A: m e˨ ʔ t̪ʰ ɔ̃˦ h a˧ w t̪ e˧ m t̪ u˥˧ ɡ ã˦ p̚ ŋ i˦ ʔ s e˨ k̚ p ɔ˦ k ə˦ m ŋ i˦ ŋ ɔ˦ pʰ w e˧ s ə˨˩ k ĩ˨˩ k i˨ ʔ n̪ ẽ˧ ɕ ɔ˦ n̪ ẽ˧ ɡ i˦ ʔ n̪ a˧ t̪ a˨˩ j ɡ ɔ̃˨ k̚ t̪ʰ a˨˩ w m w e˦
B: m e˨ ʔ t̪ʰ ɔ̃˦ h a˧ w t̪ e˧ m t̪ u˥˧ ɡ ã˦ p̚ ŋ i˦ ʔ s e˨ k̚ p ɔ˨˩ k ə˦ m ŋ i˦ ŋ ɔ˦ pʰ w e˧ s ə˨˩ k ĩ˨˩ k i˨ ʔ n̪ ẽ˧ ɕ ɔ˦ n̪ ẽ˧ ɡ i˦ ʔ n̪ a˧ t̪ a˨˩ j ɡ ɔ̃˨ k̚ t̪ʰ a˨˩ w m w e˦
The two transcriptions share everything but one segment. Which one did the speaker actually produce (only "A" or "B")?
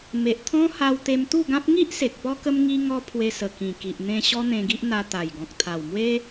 A